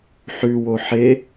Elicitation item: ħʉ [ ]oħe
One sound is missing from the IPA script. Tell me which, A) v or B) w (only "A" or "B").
B